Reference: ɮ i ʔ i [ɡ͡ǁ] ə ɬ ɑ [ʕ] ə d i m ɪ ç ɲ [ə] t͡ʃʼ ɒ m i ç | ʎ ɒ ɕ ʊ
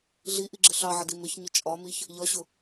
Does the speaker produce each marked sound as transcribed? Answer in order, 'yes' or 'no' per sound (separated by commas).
yes, yes, no